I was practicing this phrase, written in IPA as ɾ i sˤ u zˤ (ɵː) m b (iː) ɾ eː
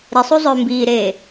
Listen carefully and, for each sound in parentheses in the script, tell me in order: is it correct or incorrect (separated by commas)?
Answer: correct, correct